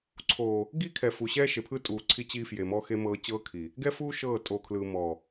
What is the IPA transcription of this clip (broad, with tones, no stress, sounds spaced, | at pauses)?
ǀʰ oː˨ | ɡ i˦ kʰ ɛ˨ f u˨ ɕ ɛː˦ ʃ e˨ pʰ ɯ˦ tʼ uː˨ ǀʰ i˦ t͡ɕ iː˦ f j e˨ m ɔ˦ x e˦ m ɤː˦ t͡ɕ ɤː˦ kʰ iː˨ | ɡ ɛ˦ f uː˦ ʃ ɤː˦˨ tʼ o˨ kʰ l ɯ˨ m ɔː˨